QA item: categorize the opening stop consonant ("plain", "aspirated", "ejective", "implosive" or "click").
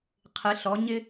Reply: aspirated